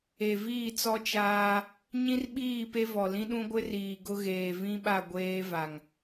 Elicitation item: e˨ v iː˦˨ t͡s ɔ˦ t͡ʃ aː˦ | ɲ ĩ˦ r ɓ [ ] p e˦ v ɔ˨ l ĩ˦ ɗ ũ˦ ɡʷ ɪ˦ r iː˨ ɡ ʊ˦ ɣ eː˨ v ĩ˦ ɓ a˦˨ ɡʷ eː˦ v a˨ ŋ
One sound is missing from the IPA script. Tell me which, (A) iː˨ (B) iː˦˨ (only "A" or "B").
B